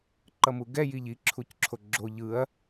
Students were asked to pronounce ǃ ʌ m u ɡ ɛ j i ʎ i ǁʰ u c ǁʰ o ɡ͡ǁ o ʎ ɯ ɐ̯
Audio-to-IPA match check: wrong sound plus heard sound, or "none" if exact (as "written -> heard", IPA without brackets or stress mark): none